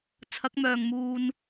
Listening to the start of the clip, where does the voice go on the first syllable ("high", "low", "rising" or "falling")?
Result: rising